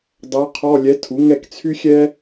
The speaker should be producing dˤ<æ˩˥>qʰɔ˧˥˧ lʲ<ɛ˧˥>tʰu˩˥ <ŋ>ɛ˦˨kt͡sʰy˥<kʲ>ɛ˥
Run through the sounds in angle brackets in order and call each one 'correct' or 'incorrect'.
incorrect, correct, correct, incorrect

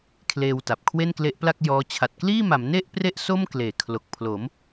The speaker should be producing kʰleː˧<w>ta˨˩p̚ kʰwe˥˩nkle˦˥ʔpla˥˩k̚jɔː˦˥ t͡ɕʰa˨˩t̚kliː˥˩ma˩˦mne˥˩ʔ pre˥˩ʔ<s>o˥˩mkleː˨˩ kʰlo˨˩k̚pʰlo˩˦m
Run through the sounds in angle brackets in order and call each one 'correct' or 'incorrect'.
correct, correct

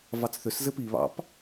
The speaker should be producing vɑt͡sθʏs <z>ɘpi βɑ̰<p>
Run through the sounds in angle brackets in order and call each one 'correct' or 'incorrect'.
correct, correct

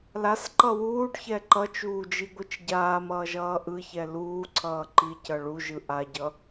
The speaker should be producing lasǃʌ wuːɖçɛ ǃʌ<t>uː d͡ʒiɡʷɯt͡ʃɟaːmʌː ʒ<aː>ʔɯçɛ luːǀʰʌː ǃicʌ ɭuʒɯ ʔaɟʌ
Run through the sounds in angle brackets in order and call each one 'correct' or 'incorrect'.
incorrect, incorrect

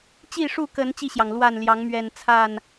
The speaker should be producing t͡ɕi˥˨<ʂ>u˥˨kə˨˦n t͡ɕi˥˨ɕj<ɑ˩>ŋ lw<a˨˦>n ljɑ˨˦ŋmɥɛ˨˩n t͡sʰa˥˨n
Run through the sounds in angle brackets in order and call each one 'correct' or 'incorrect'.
correct, correct, incorrect

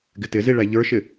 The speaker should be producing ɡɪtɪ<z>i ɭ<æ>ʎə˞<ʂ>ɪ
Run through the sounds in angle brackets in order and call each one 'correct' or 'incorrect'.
correct, correct, incorrect

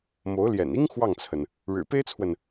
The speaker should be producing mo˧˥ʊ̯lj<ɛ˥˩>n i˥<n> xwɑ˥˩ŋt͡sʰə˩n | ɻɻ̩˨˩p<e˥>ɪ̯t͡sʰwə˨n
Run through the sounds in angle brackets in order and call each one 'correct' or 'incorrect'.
incorrect, incorrect, correct

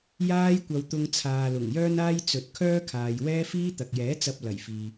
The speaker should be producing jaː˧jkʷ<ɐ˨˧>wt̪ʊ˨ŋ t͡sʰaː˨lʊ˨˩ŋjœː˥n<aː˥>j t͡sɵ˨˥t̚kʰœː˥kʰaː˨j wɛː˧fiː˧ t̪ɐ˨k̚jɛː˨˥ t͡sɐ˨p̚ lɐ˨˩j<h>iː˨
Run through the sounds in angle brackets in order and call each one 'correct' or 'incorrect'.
incorrect, correct, incorrect

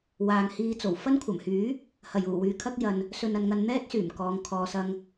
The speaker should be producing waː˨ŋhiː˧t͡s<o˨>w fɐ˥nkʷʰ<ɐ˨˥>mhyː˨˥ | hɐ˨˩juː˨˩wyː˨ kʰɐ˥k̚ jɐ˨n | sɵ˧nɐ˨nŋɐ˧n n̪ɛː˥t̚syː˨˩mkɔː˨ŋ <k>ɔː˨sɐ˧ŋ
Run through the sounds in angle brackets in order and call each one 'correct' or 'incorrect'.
incorrect, incorrect, incorrect

